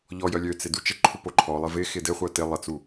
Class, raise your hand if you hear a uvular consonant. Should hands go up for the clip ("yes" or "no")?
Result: yes